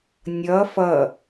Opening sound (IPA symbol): nʲ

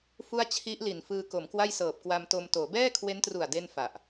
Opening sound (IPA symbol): f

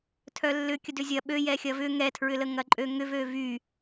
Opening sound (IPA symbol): tʰ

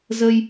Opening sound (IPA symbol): z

